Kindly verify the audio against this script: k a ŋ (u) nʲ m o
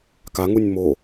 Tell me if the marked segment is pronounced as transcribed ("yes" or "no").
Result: yes